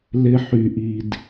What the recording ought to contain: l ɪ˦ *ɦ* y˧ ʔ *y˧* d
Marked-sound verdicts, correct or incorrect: incorrect: ħ, incorrect: i˧

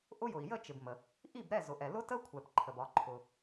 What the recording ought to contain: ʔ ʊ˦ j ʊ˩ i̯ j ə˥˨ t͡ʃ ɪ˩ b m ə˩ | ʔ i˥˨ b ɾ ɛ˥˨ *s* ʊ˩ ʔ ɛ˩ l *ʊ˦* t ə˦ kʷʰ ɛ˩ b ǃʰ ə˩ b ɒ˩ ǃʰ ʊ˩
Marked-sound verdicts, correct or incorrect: incorrect: z, correct

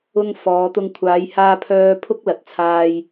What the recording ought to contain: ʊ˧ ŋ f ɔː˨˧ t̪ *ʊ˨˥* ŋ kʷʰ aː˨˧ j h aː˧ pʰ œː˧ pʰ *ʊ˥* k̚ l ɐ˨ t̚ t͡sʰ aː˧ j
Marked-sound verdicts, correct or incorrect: incorrect: ʊ˧, correct

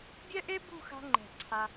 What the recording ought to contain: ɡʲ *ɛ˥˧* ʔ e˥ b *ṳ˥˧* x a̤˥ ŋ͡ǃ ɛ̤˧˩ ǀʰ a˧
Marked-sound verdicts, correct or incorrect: incorrect: ɛ˥, correct

